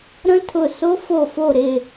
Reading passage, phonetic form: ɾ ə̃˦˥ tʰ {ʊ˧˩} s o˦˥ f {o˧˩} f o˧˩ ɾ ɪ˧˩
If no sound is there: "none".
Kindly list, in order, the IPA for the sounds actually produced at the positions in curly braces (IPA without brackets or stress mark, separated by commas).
ʊ˧˩, o˧˩